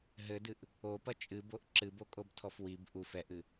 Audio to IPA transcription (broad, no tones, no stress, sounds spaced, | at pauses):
ɦ ɘ d ɨ ʔ | o p ɐ t͡ʃʼ ɨ b o ʔ ǁ ɨ b o kʼ o b tʰ ɔ f w i b ʔ u f ɛ ʔ ɨ